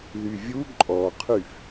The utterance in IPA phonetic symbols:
ðyvʲu ǃʼɔqʰyf

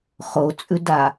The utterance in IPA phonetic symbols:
χot͡sʼʉda

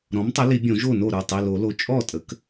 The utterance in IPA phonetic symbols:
ɾɔ̃˩˥mtˤə˩˥li˨˩˦ bʲõ˨˩˦ʒo˥˩no˥˩ ɾə˞˥˩tˤi˩˧˩lo˨˩˦lo˩˥ t͡ʃʼɔ˥˩tʼə˩˥k

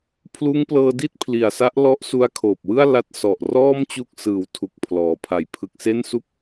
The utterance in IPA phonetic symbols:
pʰluː˦˥ŋplɤː˧di˥˩t̚ pʰli˨˩a̯sa˦˥ʔlɔ˦˥ʔsu˧a̯ kʰoː˨˩p̚wɯ˥˩a̯ la˦˥t̚sɔ˨˩ʔ rɔː˥˩m t͡ɕu˥˩k̚ sɯː˨˩wtʰu˨˩k̚ pʰlɔː˩˦pʰa˨˩j pʰɯ˨˩k̚se˥˩nsu˥˩k̚

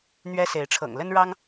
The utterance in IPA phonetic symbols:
n̪ɥɛ˦se˨˦ɪ̯ʈ͡ʂʰɤ̰˨˩ŋ lə˦n ɻɑ˦ŋ

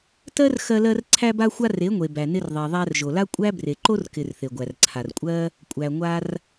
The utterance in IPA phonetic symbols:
tɜ˦r xɜ˧lɜ˧r ǀʰæ˧ba˧xʷa˧ re˨˦ŋʷe˨ bæ˨nɪ˧rðˤe˨ ðˤæ˧rʒo˨la˦ kʷʼæ˦bre˨ ǃo˦rkɪ˨r θe˨ɡʷæ˨rǀʰa˨r kʷʼɜ˦ | kʷʼæ˨ŋʷa˧r

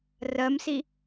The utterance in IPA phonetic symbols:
rɜmsi

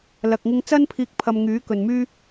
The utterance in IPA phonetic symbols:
lɐ˧k̚ŋɪ˥ŋ t͡sɐ˥npʰiː˧k̚ pʰɐ˧mŋyː˨˥kɵ˨nmyː˥

